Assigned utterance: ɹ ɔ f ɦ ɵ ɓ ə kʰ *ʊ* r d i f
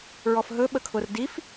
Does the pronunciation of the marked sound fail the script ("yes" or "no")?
no